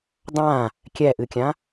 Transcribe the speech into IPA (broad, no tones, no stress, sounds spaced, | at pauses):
dˤ ã | kʲ ɛ ʔ ɨ kʲ ã